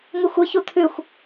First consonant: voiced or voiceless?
voiced